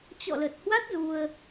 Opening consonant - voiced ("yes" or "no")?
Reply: no